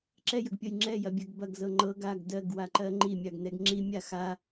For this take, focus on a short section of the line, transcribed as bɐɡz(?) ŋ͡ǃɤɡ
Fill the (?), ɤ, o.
ɤ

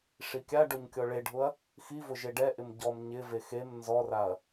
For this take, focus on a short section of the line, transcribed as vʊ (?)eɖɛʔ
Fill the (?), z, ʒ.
ʒ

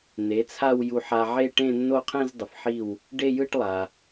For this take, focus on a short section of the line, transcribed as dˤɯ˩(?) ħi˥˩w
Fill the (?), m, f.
f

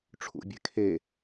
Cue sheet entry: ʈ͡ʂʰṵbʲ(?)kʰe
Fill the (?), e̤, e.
e̤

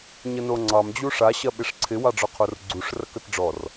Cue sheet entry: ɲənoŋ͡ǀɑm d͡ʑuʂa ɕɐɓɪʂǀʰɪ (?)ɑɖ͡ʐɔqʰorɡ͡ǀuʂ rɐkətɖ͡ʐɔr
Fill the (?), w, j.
w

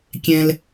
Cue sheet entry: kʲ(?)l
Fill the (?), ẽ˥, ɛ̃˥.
ɛ̃˥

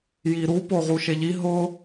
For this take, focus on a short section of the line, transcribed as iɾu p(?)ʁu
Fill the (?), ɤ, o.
o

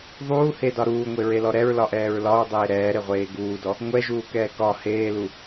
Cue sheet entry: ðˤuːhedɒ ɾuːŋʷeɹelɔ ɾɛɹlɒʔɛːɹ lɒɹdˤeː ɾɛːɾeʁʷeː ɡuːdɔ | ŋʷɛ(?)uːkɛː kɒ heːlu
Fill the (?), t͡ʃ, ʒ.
ʒ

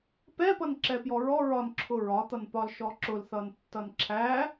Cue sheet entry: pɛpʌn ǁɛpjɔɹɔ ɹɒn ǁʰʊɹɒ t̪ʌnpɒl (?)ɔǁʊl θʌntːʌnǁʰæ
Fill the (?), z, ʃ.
ʃ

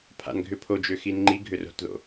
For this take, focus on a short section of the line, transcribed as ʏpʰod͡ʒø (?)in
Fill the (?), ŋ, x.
x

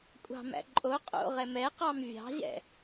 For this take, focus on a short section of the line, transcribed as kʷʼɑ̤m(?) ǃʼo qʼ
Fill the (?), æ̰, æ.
æ̰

